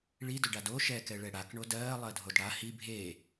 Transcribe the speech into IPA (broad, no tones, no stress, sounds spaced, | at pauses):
ɭ i d ɵ ɖ a d o ʃ ɛ k ɛ ɭ ɛ ɽ a k ɳ o d ɜː lˠ ɜ dʱ o d ɽ a h i bʱ eː